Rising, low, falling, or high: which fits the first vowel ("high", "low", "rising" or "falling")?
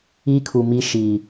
high